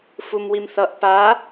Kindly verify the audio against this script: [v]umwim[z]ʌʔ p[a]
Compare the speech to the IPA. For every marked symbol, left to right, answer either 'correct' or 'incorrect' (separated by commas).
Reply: incorrect, incorrect, correct